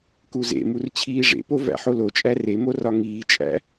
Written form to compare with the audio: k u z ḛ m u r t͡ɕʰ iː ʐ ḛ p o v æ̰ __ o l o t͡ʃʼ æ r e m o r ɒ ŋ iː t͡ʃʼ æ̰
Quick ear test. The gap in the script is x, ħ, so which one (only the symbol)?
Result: ħ